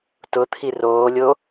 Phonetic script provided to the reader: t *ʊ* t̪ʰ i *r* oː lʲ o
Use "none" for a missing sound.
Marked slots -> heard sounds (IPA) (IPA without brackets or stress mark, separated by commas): ʊ, r